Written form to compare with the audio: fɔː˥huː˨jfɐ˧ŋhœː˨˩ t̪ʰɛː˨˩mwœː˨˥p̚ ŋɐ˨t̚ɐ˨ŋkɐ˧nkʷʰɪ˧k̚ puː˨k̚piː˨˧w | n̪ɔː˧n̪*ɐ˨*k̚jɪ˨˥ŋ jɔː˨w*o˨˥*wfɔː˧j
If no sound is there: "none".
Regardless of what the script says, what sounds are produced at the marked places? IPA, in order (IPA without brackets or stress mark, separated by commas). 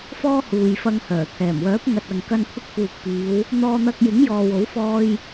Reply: ɐ˧, o˨˥